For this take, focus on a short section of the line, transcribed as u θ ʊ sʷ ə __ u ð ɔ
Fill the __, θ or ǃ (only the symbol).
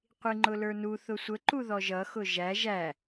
ǃ